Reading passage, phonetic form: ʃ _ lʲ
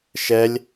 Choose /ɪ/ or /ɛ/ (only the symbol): ɛ